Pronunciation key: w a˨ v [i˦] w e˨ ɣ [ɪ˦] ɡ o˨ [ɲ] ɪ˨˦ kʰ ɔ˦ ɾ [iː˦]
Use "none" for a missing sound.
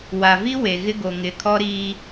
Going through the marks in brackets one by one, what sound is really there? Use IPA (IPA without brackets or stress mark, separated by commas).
i˦, ɪ˦, ŋ, iː˦